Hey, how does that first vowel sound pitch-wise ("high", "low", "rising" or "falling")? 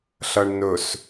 low